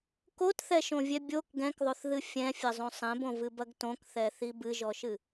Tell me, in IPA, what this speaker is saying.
k o t θ ɛ ʃ õ vʲ ɛ bʲ o k ɡ ɛ̃ k ðˤ o θ ð ɨ fʲ ɛ̃ fʲ ɐ zˤ õ sˤ ɛ̃ b õ v ɨ b ɐ ɡ t õ k θ ɛ θ i b ɨ ʒ ɔ ʃ ɨ

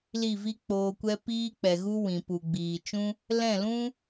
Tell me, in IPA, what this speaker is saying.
l i˦˨ v i˦ k͡p oː˧ kʷ ɛ˦ p iː˦ k͡p ɛ˨ ɣ u˦ w ĩ˨ p u˨ ɡ͡b iː˨ t͡ʃ ũ˦ | l ɛ̃˦˨ l ũ˦

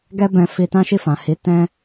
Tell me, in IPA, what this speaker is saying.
ɡ ɛ˦ b ɛ̃˧ f i˧ t ã˦ ʃ i˦˨ f ã˨ h i˨˦ t ɛ̃˦

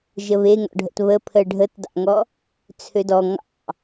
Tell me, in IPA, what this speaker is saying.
ʒ ə β e ŋ ɔ̰ ɖʱ ə̰ t β ə pʰ ə ɖʱ ə t d ɑ̰ ŋ ɔ | t͡sʰ ø d ɔ ŋ ɑ̰

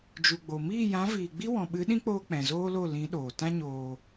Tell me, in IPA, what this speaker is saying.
d͡ʒ u˨ ɡ͡b o˨ m iː˦˨ j ã˨˦ v iː˨ ɡ͡b i˦ w ɔ̃˨ ɓ ɨ˨˦ ɗ ĩ˦ k͡p oː˧ k͡p ɛ̃˨ z oː˦ l o˦˨ l ĩ˨˦ ɗ oː˨ t ã˦ ɲ oː˨

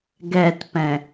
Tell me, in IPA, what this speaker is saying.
ɡ ɛ t p ɛ̃

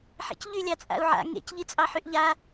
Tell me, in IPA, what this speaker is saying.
ħ ḛ c ʎ y lʲ ɑ t͡sʼ a̰ u̯ ʕ a̰ ŋ ḛ c ʎ i t͡sʼ ɑ ħ y ʔ ʎ a

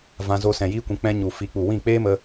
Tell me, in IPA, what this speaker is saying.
v ã˧ z o˧ s ɛ̃˨ j iː˧ kʷ ĩ˨ k͡p ɛ̃˧ ɲ u˨ f i˨˦ k͡p u˨ w ĩ˦˨ k͡p eː˦ m ə˧

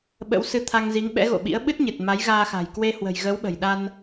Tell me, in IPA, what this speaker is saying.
ɓ ə̰˧˥ w s ɨ˧ t̪ʰ a˧ ŋ z i˨˦ ŋ ɓ ɛ̰˧˥ ɣ o̰˧˨ ɓ ḭ˧˥ ə̯ ɓ ɨ˦˥ t̚ ɲ ɨ˨˩ t̚ m a˨˦ j ɣ aː˧ x a̤˨˩ j k w e˧ h w ə̤˨˩ j ɣ ə˨˦ w ɓ ə̤˨˩ j ɗ a˧ n

